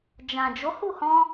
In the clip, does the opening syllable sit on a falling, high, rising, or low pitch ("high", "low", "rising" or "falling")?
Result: low